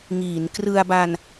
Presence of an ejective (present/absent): absent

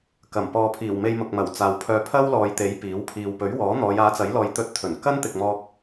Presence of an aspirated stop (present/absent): present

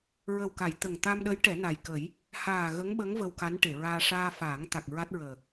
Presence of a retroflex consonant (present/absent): present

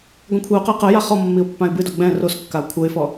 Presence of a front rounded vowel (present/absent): absent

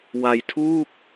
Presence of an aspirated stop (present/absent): present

